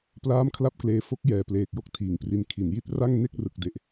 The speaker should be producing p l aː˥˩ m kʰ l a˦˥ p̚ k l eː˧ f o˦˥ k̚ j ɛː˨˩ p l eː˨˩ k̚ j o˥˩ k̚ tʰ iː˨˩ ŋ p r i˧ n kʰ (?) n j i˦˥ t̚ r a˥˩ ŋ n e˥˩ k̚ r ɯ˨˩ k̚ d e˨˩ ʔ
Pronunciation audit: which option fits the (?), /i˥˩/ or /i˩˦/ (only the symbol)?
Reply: i˩˦